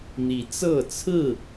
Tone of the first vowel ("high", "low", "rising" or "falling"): rising